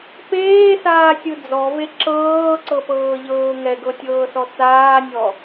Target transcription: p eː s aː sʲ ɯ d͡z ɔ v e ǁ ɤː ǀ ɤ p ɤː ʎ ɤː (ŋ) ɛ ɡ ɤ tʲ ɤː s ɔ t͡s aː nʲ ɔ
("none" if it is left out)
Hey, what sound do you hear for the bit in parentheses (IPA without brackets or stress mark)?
ŋ